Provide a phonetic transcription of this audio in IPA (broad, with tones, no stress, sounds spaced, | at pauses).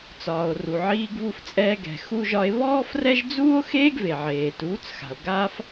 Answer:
t͡s ɒː˨ o̯ r u˨ ʕ iː˧ ɡ β u˧ f t͡sʼ ɛː˧ ɡ ɛ̤˨ x u˧ ʒ ɒ˧ e̯ β ɔː˦ f r ɛ˦ ʒ d͡z uː˦ o̯ x eː˦ ɡ v e˨ ʕ eː˨ t uː˨˦ t͡s x a̤˨ o̯ ɡ a˧ f